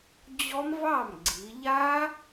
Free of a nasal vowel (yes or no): yes